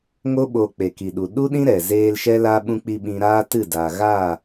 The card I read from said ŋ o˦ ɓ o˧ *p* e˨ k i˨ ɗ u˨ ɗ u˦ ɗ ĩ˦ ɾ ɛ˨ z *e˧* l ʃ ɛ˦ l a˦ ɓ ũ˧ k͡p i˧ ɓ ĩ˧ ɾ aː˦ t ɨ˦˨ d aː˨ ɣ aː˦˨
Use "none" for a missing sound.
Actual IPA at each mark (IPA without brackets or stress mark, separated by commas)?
k͡p, eː˧